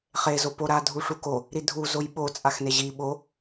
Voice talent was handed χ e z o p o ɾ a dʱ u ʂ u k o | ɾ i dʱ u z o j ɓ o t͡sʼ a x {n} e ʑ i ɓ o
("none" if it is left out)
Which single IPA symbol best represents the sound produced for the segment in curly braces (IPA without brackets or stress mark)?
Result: n